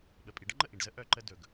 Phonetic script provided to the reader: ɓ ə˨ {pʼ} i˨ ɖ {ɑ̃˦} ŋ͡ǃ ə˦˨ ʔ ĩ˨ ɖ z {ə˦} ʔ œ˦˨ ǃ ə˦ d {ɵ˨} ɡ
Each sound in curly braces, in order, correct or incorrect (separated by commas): correct, incorrect, correct, correct